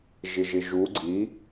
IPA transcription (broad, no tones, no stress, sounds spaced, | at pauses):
ʒ ɪ ʒ ɪ ʒ u ɡ͡ǀ i